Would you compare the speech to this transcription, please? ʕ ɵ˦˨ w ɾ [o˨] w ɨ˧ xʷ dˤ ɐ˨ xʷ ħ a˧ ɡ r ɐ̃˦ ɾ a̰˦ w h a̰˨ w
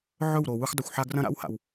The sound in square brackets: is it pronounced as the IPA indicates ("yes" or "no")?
yes